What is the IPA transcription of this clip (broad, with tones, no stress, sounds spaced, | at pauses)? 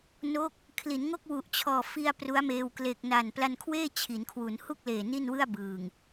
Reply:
n o˦˥ k̚ | kʰ l i˩˦ n ŋ o˥˩ k̚ w u˨˩ ʔ t͡ɕʰ ɔː˨˩ f i˧ a̯ p r u˦˥ a̯ m eː˧ w k l e˨˩ k̚ n a˨˩ n p l a˧ n kʰ w eː˥˩ t͡ɕʰ i˩˦ n kʰ w u˩˦ n h u˥˩ k̚ l eː˨˩ n i˥˩ n w ɯ˥˩ a̯ b ɯː˨˩ ŋ